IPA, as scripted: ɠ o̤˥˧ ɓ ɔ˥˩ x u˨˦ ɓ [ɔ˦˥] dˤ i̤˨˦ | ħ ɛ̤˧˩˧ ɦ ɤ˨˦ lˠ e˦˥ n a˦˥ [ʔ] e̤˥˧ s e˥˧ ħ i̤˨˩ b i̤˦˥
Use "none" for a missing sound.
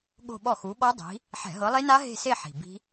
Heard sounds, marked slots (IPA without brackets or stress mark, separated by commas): ɔ˦˥, ɦ